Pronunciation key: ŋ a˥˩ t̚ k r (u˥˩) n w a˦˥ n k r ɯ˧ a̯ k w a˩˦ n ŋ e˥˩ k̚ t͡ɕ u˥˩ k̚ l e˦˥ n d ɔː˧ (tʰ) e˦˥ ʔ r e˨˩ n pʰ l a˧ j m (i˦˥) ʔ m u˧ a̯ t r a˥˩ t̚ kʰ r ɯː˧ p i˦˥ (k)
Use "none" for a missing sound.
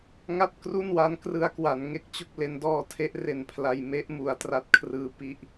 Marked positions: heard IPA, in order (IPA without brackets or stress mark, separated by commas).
u˥˩, tʰ, e˦˥, ʔ